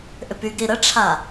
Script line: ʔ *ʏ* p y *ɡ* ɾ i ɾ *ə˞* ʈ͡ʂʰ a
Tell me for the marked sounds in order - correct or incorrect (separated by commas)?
correct, correct, incorrect